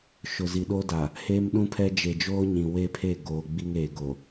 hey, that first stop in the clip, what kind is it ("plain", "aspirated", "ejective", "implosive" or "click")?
implosive